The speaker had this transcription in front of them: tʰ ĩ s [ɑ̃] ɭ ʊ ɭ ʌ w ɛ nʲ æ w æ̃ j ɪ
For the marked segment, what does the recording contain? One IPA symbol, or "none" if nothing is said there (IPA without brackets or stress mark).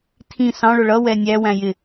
ɑ̃